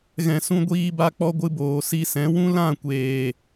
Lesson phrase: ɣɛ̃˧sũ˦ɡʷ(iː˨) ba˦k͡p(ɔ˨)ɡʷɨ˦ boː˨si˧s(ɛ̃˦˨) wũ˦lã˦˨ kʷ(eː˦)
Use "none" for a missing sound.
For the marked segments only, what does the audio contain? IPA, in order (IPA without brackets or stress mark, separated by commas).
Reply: iː˦, ɔ˦, ɛ̃˨˦, eː˨